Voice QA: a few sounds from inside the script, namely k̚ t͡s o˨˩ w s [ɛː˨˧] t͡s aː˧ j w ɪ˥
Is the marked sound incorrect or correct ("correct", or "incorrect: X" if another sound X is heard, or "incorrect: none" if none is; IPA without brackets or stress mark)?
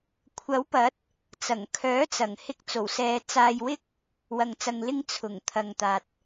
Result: correct